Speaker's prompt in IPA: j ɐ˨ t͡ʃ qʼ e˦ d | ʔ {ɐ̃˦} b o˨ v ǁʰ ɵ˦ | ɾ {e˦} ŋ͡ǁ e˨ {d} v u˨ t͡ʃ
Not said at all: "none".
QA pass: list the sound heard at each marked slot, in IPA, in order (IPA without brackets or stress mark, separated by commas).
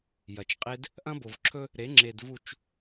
ɐ̃˦, e˨˦, d